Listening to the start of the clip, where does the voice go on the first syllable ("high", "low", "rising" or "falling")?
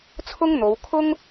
high